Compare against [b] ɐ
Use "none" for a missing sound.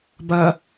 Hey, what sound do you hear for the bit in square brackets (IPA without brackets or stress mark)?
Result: b